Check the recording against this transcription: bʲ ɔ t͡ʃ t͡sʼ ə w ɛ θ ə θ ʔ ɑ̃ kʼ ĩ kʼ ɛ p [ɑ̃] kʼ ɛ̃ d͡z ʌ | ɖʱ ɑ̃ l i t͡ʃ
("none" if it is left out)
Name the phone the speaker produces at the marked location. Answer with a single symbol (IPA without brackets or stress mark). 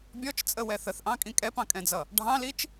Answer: ɑ̃